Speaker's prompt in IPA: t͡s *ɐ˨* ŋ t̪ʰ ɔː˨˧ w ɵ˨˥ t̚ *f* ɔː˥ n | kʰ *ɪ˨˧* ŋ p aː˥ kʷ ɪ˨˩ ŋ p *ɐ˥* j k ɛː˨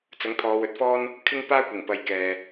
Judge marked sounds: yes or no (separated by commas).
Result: no, yes, no, no